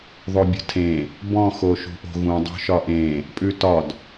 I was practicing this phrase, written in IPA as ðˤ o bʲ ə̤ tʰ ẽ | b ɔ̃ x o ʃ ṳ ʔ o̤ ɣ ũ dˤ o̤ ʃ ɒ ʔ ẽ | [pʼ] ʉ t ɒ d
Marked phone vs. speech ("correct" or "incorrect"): correct